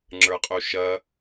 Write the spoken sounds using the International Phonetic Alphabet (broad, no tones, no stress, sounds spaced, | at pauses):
ŋ͡ǁ ə˞ qʼ u ʃ ɐ